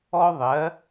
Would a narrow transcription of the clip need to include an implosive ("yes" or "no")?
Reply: no